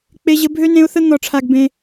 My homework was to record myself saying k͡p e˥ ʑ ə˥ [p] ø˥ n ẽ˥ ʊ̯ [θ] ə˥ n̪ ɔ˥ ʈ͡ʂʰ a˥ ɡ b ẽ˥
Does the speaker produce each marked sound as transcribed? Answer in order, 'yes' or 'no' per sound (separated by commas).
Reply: no, yes